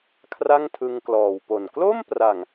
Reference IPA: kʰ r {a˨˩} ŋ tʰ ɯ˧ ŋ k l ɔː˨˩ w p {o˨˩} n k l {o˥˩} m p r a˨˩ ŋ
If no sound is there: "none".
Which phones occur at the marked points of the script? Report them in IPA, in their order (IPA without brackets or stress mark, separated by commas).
a˥˩, o˨˩, o˥˩